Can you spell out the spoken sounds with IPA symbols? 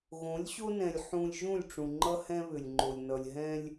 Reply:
ɣõ˨˦lʲɕo˦nɛ̃˨lʲ ħũ˨lʲ ʒũ˦˨lʲʈ͡ʂũ˨ ŋ͡ǃʌ˦hɛ̃˦βʏ˨lʲŋ͡ǃo˨lʲ nʌ˨lʲɦɛ̃˦lʲ

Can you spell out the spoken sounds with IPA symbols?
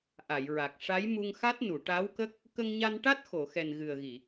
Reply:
ʔa˨˩˨jɹa˨˩k̚ ʂa˧˥jmu˧ŋxa˦˥t̚ nu˨˩˨ʈa˧˥wkə˦˥k̚ | kə˧ŋɲa˧nʈa˦˥t̚ xo˨˩˨xɛ˨˩n ɣɨ˨˩ə̯ɣi˨˩˨

